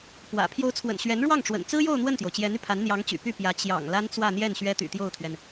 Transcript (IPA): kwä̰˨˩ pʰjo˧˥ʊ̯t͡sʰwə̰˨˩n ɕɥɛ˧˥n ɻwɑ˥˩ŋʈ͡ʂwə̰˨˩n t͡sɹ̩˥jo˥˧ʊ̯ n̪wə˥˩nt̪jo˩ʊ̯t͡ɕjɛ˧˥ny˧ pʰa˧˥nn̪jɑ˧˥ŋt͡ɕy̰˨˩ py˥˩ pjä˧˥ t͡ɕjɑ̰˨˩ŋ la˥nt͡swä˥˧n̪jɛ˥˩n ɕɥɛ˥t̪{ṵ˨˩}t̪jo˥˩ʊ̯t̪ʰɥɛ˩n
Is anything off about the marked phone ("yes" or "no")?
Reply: yes